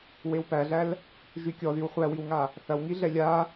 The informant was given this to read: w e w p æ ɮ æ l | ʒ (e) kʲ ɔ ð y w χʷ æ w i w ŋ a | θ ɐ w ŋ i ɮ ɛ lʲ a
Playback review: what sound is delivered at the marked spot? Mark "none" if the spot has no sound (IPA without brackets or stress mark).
y